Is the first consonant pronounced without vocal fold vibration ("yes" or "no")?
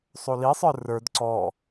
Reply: yes